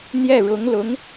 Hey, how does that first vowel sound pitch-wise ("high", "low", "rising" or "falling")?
falling